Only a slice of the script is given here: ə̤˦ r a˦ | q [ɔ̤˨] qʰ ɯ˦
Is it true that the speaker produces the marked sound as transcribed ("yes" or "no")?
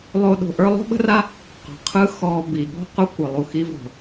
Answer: yes